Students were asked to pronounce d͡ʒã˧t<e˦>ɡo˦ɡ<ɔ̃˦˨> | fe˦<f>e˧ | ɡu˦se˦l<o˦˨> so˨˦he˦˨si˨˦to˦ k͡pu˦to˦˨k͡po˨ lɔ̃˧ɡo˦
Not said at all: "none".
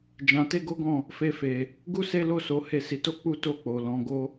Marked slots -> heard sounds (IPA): e˦, ɔ̃˦˨, f, o˦˨

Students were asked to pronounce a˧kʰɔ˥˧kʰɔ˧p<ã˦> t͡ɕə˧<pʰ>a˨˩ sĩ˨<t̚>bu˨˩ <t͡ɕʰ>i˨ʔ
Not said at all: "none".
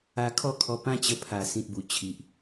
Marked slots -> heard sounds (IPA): ã˦, pʰ, t̚, t͡ɕʰ

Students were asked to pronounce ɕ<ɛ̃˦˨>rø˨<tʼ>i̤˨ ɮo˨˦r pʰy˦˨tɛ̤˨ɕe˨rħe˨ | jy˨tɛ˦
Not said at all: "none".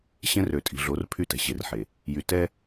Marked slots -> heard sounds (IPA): ɛ̃˦, tʼ

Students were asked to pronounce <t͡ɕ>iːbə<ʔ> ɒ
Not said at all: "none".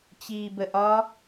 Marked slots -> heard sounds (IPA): t͡ɕ, ʔ

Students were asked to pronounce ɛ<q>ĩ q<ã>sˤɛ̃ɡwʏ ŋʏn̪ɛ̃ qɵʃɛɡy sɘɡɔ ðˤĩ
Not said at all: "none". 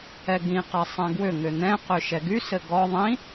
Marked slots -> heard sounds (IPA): ɡ, a

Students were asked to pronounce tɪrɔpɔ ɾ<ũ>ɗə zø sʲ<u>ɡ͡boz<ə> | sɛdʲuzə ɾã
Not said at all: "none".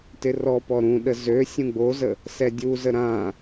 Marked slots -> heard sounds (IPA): ũ, ũ, ə

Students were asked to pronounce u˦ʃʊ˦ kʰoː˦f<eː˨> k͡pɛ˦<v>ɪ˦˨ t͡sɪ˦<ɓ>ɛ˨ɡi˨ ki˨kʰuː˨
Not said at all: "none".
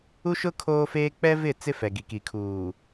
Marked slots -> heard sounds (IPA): eː˦, v, f

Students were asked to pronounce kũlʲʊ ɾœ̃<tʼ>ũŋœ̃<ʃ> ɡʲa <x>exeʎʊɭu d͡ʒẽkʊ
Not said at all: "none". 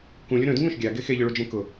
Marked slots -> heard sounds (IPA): d, ʃ, ɡ

